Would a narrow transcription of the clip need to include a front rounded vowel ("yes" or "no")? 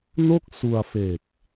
no